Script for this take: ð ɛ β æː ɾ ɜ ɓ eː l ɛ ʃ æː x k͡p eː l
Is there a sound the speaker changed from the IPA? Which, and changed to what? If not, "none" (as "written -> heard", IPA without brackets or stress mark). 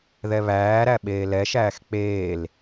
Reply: ɜ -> æ